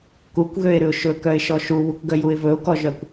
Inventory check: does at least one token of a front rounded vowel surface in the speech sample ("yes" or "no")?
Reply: yes